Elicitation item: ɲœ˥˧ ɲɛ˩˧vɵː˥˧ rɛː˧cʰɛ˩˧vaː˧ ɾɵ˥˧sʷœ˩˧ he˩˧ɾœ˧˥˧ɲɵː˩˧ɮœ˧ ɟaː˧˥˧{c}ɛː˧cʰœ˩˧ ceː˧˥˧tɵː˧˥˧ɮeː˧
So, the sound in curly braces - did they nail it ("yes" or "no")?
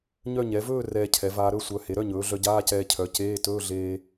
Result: yes